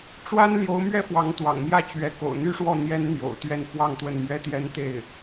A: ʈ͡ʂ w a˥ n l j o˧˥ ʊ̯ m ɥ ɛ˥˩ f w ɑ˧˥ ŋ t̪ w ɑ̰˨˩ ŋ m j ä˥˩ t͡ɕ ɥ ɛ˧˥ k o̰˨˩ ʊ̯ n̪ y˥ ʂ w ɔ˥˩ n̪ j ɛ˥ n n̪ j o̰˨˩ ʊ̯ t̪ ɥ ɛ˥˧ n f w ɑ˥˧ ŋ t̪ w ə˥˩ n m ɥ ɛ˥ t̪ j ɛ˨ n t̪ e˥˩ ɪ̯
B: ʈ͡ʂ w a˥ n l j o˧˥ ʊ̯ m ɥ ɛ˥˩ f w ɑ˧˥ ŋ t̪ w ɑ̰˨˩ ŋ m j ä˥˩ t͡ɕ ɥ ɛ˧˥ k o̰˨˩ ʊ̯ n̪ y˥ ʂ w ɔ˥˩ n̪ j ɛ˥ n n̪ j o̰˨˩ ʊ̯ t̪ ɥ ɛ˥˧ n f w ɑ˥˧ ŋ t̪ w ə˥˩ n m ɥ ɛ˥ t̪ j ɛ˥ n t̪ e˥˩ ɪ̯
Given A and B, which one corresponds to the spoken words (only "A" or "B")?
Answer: B